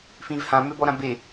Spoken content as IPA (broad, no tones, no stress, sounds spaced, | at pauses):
f ĩ v h ã m ø b ɔ ɾ ã b e